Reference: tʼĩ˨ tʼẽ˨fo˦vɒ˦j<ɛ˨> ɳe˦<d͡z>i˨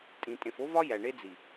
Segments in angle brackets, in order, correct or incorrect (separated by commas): incorrect, correct